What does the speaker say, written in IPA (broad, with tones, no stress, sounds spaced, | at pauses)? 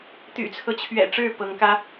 t̪ y̰˨˩ t͡sʰ ɤ˦ t͡ɕʰ ɥ ɛ̰˨˩ ʈ͡ʂ ɻ̩˥˩ p ɤ˧˥ ŋ k ä˥